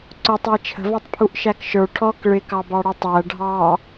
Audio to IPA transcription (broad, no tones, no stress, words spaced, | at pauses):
ǀʊtˤæ t͡ʃʰə̤vɔtˤpʰuʔʃæk ʃə˞ ʈʰɔk ɭɪkɑbɑɽu tˤæ ɖʱɑ